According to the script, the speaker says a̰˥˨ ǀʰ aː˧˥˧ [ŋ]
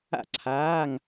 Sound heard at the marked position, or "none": ŋ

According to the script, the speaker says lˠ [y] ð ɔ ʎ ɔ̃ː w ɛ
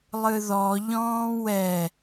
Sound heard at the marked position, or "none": ɨ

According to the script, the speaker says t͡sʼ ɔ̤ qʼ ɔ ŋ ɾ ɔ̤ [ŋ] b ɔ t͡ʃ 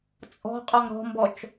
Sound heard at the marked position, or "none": m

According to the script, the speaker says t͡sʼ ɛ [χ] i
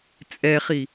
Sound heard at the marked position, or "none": χ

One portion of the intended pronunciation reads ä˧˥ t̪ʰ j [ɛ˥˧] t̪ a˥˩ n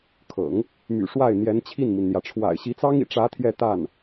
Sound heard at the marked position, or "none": ɛ˥˧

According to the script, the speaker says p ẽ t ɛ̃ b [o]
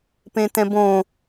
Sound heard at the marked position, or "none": õ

